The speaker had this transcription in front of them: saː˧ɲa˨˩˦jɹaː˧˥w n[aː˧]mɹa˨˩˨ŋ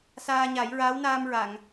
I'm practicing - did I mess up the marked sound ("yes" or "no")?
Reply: no